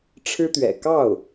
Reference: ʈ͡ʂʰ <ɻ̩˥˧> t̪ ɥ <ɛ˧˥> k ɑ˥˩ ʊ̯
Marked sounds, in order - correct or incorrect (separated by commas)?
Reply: incorrect, incorrect